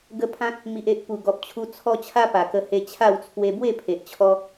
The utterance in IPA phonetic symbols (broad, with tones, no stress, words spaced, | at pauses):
ɡə˧ pʰã˦t̚ | mi˨ʔe˨ʔ pu˨˩ɡɔ˨p̚t͡ɕʰu˧ t͡sʰɔ˧ t͡ɕʰa˦pa˨˩kə˧he˧ t͡ɕʰa˥˧w t͡sʰwe˧bwe˥˧pʰe˨ʔt͡ɕʰɔ˧